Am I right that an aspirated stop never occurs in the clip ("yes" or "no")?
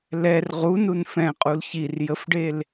yes